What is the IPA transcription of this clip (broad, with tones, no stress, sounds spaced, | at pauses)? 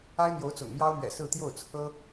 a˥ ɪ̯ n̪ j o˧˥ ʊ̯ t͡s ʊ̰˨˩ ŋ m j ɑ˥ ʊ̯ m ɥ ɛ̰˨˩ s ɹ̩˥˧ t̪ j o˥˩ ʊ̯ t͡sʰ ɤ˥